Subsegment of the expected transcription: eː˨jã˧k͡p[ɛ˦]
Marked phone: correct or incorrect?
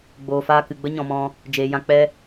correct